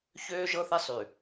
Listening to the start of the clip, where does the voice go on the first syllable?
high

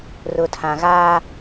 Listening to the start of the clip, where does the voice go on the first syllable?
low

